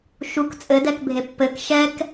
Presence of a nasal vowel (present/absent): absent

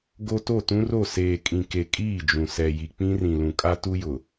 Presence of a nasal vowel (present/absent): present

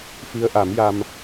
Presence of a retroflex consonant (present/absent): absent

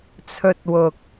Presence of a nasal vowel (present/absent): absent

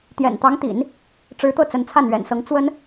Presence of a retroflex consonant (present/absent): present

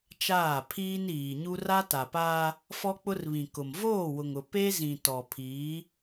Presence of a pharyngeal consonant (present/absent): absent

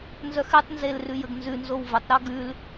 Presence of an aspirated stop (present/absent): absent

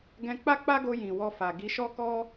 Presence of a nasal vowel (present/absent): present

